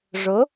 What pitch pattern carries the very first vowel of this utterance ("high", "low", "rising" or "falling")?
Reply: rising